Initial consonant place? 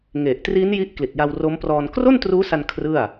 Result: velar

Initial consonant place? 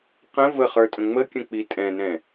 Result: uvular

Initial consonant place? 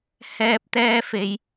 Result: glottal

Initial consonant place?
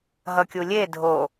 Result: glottal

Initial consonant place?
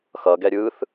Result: velar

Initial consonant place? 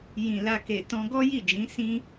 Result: palatal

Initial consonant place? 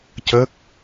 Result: palatal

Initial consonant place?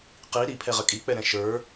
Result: uvular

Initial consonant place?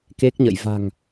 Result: velar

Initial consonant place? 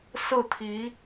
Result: alveolar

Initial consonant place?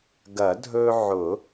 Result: velar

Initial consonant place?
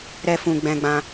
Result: alveolar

